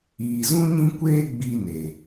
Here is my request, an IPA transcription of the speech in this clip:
iː˨ zũ˦ɲĩ˦ kʷeː˦ɡ͡biː˧ne˨

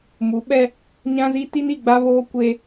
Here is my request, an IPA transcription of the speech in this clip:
mu˨˦ɓɛ˦ | ɲã˦zi˦ ti˦ni˦˨ɡ͡ba˦βoː˦ kʷe˦

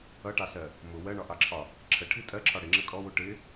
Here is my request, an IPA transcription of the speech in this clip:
ʌʈɑsɜ | mʊ wɜɳɒʔɑǁʰɒ | ǁʰəʈʰi tʼɜǁʰɒ ɽɪŋ͡ǁə kʼɔwu ʈɪ

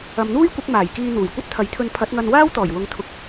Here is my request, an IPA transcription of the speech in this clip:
ɐ˨mn̪uː˥jkʷɪ˨˥k̚ maː˨˩jkiː˧ n̪uː˨˩jkʷɐ˥t̚t̪ʰɐ˨˥jt̪ʰɵ˧n pʰɐ˨˥t̚ŋɐ˧nwaː˥w t̪ɔː˨˩jwʊ˨˥ŋt̪ʰʊ˨k̚

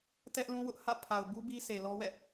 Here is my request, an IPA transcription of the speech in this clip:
tɛ˦ʔ lũ˦wʊ˦ʔhä̰˦˨ pʰa˨ʊ̯bu˦ bi˦ se˨lɔ˦wɛ̰˦˨

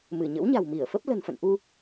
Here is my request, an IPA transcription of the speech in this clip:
mɨ˧˩ɲə̰˧˥wɲa̤˨˩w mi˧˩ə̯fə˦˥p̚ lə̤˨˩nfə̰˧˨nʔu˧

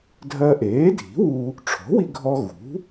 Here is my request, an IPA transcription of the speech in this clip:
dʱɜ˧ʔeː˩˥dʱi̤˩˥wu˧ | ʈ͡ʂʰɔ̤˩˥wi˧ɡʱɔ˧ ɣṳ˩˥

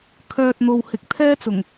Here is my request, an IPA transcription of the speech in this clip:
kʰœː˨t̚n̪o˨whɪ˨k̚ t̪ʰɛː˥t͡sʊ˨˩ŋ

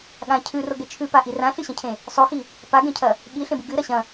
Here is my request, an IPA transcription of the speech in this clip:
ɠã cʰʉroɡe t͡ʃʰʉpaʔi rãɬɨɕɐ̃cʰẽ | sˤoxi | paɡẽcʰɐ | ɠiɬẽbɨ ɡɨɾɐ ɕɐ̃

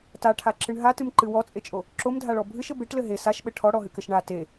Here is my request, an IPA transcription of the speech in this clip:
taʈʰaǁɨɳ ɦatɨmǃɨ wɔt͡sʼet͡ʃʼo | ǁomdʱaɭɔ bʱɨʃɘ beʈlɘ ɦe saʃɓɘ ʈʰɔɽɔɦɨkɘʃ ɳa te

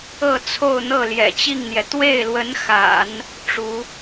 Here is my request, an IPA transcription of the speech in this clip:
ɤ˥˧t͡sʰo˥˧ʊ̯n̪ɤ˥˩ ljɛ̰˨˩t͡ɕi˥˩ŋn̪jɛ˩ t̪we˥˩ɪ̯lwə˧˥nxa̰˨˩˦n | ʈ͡ʂu˧˥

